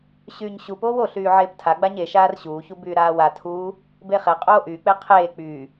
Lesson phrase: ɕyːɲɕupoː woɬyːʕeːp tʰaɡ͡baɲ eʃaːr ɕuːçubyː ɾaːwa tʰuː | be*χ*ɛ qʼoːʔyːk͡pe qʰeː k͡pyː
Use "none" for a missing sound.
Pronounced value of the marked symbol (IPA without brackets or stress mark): χ